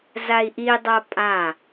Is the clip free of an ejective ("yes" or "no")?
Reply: no